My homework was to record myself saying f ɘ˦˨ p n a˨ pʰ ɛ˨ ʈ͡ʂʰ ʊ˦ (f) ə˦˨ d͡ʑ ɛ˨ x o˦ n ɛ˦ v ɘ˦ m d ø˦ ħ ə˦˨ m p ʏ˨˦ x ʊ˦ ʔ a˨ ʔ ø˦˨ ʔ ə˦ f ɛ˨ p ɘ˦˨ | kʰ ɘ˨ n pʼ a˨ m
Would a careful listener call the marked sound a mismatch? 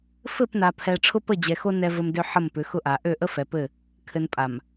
yes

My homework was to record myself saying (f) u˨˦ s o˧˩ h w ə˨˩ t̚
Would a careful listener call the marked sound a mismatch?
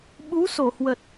yes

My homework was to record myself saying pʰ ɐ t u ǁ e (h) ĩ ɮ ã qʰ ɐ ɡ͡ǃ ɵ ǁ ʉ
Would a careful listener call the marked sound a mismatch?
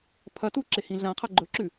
no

